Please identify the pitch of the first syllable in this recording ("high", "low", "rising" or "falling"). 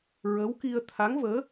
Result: rising